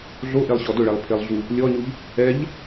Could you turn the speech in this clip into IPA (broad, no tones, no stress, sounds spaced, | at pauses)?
ɮ o ʔ e lˠ ɕ ɔ d ʊ ɭ ɛ lˠ pʰ e lˠ ɮ u | lʲ ɔ ɲ u ʎ | ɛ ʎ